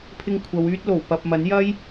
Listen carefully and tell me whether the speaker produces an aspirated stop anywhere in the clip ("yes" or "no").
yes